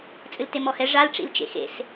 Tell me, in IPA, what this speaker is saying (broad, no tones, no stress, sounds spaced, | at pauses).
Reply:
t͡sʼ ɨ l t e m ɔ h ɛ ʐ a l ʈ͡ʂ ḭ l t͡ʃ ḛ x ḛ s